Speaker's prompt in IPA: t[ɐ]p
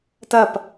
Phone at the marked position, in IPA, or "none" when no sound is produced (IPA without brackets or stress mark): ɐ